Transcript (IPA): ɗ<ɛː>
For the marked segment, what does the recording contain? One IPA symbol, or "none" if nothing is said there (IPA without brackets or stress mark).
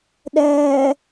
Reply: ɛː